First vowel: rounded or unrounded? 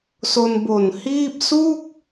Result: rounded